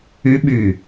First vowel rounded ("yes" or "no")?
yes